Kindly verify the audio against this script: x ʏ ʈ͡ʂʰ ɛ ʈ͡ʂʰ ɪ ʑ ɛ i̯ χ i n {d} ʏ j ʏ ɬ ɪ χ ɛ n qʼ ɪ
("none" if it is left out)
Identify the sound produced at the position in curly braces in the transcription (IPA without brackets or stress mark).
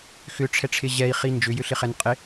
d͡ʒ